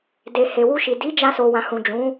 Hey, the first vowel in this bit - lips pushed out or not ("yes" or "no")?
no